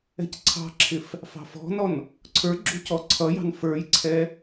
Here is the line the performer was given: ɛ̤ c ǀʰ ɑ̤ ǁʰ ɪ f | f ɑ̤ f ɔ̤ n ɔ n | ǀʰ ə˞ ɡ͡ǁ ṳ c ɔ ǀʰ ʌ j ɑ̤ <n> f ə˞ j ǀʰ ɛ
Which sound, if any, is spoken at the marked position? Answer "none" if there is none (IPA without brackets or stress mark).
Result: n